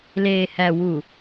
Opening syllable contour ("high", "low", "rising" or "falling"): low